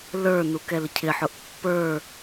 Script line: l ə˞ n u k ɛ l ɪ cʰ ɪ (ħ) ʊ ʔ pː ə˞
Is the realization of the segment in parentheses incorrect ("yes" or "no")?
no